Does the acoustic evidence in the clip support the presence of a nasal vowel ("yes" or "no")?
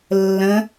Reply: yes